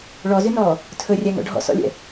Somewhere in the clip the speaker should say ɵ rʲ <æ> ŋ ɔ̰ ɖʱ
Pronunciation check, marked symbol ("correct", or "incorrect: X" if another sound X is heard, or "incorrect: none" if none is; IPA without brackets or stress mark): correct